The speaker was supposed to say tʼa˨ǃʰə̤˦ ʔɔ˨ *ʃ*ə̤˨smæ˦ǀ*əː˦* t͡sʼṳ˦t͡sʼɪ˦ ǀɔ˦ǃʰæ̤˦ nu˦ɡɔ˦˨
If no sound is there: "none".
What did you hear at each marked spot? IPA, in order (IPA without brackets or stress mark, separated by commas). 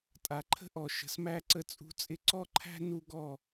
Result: ʃ, ə˦